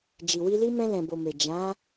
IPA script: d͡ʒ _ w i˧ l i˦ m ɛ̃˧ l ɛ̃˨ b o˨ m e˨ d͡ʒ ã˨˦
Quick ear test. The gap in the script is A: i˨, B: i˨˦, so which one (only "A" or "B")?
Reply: A